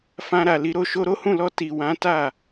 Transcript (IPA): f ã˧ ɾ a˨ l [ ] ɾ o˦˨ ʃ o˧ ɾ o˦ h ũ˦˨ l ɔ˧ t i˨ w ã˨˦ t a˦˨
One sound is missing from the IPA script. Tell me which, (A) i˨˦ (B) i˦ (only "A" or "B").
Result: A